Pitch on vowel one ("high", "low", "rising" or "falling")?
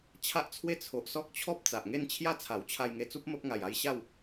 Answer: high